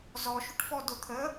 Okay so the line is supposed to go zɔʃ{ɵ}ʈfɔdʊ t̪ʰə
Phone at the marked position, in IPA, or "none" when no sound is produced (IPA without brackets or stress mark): ʊ